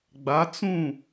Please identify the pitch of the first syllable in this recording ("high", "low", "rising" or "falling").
rising